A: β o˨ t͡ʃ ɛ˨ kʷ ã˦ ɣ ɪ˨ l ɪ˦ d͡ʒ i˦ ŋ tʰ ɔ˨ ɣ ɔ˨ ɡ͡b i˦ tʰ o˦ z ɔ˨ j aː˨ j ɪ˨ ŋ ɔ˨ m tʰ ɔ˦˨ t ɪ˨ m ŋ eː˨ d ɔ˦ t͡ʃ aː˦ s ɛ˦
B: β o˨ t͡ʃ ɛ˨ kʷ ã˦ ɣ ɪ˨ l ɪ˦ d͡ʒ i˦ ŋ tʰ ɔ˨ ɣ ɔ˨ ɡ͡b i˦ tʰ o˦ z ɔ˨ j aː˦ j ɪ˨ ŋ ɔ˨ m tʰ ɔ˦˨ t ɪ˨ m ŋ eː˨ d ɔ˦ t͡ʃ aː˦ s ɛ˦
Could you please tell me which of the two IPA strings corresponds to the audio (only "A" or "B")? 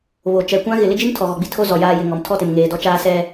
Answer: A